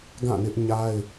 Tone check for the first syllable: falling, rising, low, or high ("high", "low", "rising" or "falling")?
falling